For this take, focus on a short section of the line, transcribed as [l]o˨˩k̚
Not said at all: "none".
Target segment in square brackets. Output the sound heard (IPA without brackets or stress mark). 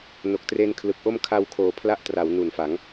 n